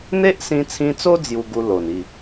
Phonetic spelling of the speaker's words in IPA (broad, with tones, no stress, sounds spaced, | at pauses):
n̪ e˦ ʔ s ĩ˧ t͡sʰ ĩ˧ t͡s o˦ d͡z j u˧ ɡ u˧ l o˨˩ n i˥˧